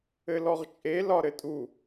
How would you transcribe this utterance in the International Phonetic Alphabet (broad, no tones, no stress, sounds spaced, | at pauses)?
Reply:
ɘ l ɔ ʁ t͡ʃʼ e l ɒ ɾ ɘ tʼ u